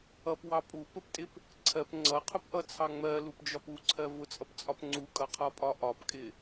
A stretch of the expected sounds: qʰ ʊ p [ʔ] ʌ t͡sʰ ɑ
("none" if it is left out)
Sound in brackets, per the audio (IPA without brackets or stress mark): ʔ